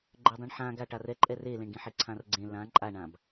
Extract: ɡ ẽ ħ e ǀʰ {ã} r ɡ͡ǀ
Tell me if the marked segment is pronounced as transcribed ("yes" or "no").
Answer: yes